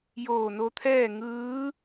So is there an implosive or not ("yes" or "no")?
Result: no